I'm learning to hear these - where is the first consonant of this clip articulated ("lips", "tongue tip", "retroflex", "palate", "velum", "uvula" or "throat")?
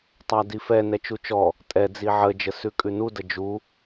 tongue tip